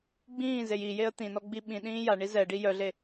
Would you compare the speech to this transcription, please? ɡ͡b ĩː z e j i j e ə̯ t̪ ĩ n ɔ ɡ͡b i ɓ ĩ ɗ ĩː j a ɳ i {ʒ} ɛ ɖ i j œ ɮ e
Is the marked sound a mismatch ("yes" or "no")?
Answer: yes